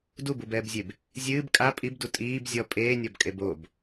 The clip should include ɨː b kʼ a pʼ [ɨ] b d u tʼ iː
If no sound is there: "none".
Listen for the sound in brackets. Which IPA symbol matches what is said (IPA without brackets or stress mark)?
i